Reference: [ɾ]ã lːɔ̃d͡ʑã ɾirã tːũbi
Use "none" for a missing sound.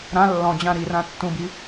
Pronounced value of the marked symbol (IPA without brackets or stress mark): ɾ